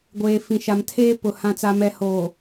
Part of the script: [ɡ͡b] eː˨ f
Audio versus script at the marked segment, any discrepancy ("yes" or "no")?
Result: yes